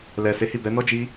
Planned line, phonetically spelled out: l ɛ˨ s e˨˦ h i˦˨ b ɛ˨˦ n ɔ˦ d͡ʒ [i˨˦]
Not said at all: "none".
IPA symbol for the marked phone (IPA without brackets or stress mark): i˦